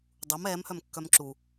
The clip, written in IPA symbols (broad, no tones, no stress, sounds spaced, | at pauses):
dˤ u m ɛː m h œ m kː œ m ǁ u